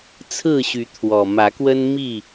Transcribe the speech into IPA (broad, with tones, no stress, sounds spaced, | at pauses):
t͡sʰ ɹ̩˥˨ ɕ y˨˦ t̪ʰ w ɔ˨˩ m ä˨˦ k w ə˦ n m i˥˨